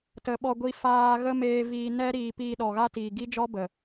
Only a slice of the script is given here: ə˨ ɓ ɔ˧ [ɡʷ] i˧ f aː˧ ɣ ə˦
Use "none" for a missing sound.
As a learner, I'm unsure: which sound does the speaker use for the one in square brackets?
ɡʷ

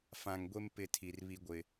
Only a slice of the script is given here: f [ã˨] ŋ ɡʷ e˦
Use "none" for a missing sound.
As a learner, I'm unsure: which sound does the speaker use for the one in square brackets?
ã˨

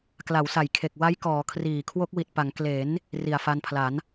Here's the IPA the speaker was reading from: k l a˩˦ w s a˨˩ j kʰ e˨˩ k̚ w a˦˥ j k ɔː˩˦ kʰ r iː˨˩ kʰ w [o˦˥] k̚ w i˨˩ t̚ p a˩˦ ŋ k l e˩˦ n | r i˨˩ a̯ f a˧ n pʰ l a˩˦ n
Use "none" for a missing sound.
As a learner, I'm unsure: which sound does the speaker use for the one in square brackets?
o˦˥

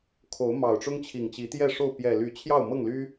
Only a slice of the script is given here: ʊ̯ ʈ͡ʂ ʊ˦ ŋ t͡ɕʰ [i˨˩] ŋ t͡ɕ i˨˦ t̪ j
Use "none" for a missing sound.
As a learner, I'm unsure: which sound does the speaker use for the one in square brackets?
i˨˩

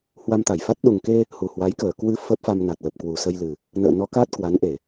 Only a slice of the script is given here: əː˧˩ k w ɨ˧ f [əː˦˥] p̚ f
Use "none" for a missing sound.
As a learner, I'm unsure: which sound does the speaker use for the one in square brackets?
ə˦˥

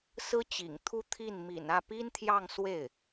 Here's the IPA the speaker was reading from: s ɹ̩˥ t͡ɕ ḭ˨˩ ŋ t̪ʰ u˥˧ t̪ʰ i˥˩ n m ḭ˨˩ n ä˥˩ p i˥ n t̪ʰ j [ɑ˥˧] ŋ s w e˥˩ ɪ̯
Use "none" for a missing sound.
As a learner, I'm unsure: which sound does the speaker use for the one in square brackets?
ɑ˥˧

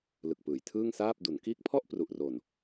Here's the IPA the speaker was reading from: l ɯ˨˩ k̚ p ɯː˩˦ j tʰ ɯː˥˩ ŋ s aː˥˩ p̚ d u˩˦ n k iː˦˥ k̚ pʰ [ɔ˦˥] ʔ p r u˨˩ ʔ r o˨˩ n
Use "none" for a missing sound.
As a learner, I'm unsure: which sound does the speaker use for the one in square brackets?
ɔ˥˩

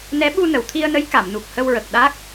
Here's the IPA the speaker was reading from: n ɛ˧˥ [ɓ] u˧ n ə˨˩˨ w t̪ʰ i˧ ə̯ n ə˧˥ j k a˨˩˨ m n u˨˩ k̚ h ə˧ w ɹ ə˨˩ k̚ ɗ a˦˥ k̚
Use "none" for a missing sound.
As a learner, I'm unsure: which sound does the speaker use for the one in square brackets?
ɓ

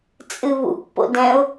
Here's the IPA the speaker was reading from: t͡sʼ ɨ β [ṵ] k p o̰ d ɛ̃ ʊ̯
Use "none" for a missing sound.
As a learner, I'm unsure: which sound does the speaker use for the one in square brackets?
ṵ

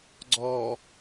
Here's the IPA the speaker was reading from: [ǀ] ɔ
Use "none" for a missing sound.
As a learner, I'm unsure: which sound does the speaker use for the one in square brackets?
ɡ͡ǀ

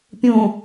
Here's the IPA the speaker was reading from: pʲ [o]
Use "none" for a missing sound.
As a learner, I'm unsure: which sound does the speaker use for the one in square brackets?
õ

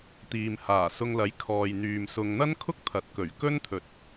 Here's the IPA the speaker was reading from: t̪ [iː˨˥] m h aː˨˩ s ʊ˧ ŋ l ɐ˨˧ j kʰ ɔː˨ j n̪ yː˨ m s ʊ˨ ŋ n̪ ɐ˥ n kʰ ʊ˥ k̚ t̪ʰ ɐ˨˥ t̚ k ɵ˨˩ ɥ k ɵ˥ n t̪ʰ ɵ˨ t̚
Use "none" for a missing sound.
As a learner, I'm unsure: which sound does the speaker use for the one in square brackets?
iː˨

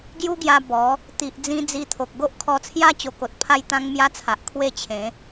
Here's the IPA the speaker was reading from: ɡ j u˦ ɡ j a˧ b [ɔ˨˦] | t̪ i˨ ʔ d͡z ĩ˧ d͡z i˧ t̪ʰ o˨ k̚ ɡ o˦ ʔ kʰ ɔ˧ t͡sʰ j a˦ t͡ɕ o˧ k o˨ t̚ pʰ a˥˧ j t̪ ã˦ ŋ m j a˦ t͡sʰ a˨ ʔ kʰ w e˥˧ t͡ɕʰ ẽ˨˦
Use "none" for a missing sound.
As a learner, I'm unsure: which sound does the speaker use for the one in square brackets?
ɔ˨˦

